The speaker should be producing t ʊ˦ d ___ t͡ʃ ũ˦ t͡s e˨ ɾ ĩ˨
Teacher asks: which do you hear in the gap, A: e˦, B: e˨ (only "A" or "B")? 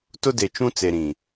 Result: B